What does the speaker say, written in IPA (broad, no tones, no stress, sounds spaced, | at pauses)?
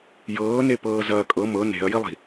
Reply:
j ɤː n e p ɤː z ɐː kʼ ɤ m ɤ n e̤ ɐ̯ j i lˠ i̤